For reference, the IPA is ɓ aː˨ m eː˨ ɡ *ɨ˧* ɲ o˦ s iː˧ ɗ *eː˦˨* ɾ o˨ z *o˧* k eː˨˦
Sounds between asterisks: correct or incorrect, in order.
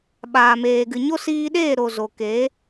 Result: incorrect: ɨ˨, correct, incorrect: o˨

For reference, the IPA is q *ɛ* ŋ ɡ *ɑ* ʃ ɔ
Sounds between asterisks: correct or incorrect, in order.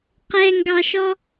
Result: correct, correct

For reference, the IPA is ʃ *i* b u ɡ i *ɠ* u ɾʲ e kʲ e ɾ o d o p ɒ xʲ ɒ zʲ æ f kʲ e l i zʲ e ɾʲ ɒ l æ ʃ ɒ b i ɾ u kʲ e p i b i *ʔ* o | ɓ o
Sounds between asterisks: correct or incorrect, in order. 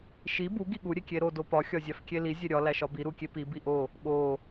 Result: correct, correct, correct

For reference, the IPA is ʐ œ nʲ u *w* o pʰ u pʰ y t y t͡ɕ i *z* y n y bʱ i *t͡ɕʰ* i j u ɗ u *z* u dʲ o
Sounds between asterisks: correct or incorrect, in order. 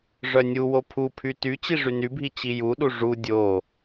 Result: correct, incorrect: ʐ, incorrect: t͡ɕ, incorrect: ʐ

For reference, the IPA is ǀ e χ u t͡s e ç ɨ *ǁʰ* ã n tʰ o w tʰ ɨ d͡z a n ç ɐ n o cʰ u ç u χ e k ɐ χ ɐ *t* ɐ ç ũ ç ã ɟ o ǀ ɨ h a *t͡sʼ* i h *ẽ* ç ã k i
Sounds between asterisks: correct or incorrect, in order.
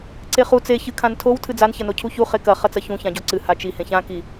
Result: incorrect: kʰ, incorrect: t͡s, incorrect: t͡ʃ, correct

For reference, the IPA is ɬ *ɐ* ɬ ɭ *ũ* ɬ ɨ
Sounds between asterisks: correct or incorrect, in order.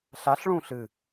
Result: incorrect: a, correct

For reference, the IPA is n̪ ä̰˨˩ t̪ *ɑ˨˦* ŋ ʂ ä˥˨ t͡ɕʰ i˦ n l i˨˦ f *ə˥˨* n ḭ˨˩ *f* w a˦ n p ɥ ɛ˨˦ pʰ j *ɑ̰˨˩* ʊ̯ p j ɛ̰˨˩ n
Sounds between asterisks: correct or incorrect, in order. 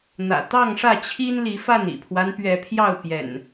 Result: incorrect: ɑ˥˨, incorrect: a˥˨, incorrect: pʰ, incorrect: ɑ˥˨

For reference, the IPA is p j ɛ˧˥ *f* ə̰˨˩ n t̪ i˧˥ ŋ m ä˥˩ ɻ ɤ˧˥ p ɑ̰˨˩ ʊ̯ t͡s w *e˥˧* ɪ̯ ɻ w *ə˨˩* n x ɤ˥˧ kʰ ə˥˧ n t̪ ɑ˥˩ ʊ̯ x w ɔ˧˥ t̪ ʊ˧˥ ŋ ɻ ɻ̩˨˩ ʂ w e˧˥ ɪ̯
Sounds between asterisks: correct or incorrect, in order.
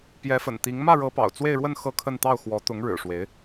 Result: correct, correct, incorrect: ə˥˧

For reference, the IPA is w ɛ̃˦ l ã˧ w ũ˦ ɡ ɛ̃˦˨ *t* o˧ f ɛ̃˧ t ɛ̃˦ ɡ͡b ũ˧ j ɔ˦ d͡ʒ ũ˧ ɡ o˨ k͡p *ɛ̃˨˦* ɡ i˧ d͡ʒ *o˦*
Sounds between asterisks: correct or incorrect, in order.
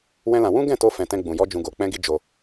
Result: correct, incorrect: ɛ̃˧, incorrect: o˧

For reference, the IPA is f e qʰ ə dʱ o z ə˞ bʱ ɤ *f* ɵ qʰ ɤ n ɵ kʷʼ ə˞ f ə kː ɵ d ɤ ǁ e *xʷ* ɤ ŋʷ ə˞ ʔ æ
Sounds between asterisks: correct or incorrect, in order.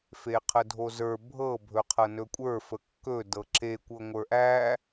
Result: incorrect: bʱ, incorrect: kʷ

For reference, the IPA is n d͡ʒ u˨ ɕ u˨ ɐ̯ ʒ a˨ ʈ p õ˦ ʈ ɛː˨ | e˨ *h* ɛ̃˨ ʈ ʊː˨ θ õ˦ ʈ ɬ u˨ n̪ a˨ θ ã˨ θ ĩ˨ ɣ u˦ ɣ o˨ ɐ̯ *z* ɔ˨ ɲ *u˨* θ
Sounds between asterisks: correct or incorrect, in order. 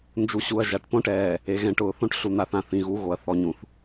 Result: incorrect: ɣ, incorrect: θ, incorrect: ũ˨

